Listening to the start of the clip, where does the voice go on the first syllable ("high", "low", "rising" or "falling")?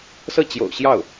falling